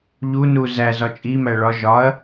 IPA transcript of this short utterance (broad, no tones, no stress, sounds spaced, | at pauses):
ʎ u n u z æ z ɒ t͡ʃʼ i m æ ɭ ɒ ʒ ɒ ɐ̯